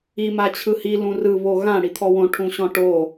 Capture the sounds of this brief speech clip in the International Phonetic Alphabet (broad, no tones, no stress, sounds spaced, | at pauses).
i m a t͡ɕʰ ɯ h i l ũ r ɯ β o ɣ ã ɽ i t̪ʰ ɔ w õ ʈʰ ũ ɕ ɔ̃ ʈ o